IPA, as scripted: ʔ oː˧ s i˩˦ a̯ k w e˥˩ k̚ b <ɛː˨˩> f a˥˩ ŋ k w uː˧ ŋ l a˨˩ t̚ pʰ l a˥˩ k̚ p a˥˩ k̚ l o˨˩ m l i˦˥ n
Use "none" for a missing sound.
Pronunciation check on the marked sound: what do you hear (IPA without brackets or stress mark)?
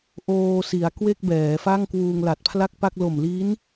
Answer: ɛː˩˦